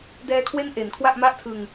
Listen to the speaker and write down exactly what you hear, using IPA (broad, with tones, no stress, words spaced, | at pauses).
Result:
dɛː˧kʰwe˦˥n ʔe˨˩nkʰwa˥˩ʔma˥˩ʔtʰɯ˧ŋ